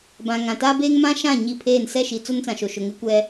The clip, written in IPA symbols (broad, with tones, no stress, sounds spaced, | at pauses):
b ã˨ ŋ ã˨ t aː˦ b eː˦ ŋ m ã˦ ʃ ã˦˨ ɲ i˦˨ pʰ eː˦˨ n s ɛ˦˨ ʃ i˨ t͡s o˦ n t͡s ã˨ ʃ o˨ ʃ ʊ˨ ŋ ɪ˦ kʷ ɛ˦